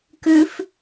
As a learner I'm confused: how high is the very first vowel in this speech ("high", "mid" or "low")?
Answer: high